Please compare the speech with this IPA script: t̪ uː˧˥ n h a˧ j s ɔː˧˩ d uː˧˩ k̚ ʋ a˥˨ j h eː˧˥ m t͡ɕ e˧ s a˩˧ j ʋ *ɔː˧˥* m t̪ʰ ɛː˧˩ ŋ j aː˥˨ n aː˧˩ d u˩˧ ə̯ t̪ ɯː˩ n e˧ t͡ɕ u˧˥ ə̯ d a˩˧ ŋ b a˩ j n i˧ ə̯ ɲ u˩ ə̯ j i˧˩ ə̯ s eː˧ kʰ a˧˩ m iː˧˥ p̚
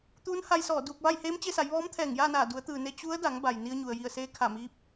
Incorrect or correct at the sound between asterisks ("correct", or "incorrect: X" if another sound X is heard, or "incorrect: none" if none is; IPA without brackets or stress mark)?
correct